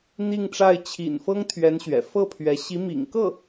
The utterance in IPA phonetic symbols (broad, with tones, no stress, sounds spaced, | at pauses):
n̪ i˥˧ ŋ ʈ͡ʂ a˥˩ ɪ̯ t͡ɕʰ ḭ˨˩ n f ɤ˥ ŋ t̪ʰ ɥ ɛ˧˥ n ɕ ɥ ɛ̰˨˩ f ɤ˥˩ pʰ ɥ ɛ˧˥ ɕ i˧˥ m ḭ˨˩ ŋ k ɤ˥˩